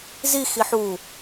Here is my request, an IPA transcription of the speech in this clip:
zi xiħu

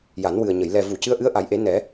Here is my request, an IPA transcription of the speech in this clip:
ja˨˩˦nwɨ˨˩ə̯ɲə˨˩˨j lɛ˨˩vu˨˩˨ cɨ˧˥ə̯ʔɨ˧˥ə̯ʔa˨˩˦jʔe˨˩˦ nɛ˨˩˦

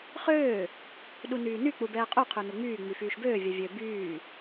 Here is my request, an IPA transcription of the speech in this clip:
χøː | ɗunyːny k͡pubɛːqʼu qʰønuŋ͡myː ŋ͡myfyːʃbøː vʲɛvʲø byː

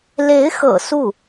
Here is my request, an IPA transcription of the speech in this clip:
le˧˥ɪ̯xɤ̰˨˩ su˥˩

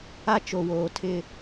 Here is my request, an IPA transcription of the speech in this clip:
a˦t͡ʃo˨woː˨ tʰɪ˦

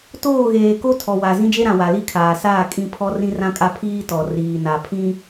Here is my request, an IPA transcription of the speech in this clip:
toː˦˨ɣeː˨ko˦ tʰɔ˨wa˨ zĩ˦d͡ʒe˦ɾã˨ wa˨li˦kʰaː˨ saː˦˨kʼĩ˦˨ pʰɔ˦rĩ˦rã˦kʼa˦ pʰiː˦tɔ˨ riː˨na˨pʰĩ˦

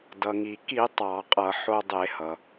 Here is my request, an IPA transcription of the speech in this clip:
dʌ˩ŋi˩ki˧˩˧ tˤɑ˧˩˧qʼʌ˧˩˧ ħo˧dˤe˧˩˧ hʌ˩

